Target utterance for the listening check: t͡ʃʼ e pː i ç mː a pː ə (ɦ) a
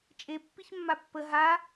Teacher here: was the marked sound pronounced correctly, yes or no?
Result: yes